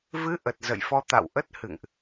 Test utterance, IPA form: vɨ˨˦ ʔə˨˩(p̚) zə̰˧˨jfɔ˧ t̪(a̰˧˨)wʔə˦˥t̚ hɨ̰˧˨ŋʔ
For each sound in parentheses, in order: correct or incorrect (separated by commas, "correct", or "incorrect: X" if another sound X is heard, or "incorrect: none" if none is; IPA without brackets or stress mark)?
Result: incorrect: t̚, correct